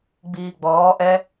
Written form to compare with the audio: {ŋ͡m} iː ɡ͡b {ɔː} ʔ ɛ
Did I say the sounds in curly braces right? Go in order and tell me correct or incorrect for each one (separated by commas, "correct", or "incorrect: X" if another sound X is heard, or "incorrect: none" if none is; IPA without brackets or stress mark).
incorrect: ɡ͡b, correct